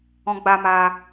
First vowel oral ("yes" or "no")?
no